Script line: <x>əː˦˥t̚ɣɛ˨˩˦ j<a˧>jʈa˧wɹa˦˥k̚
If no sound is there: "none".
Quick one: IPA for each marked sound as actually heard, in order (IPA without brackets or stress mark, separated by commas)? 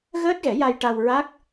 ɣ, a˧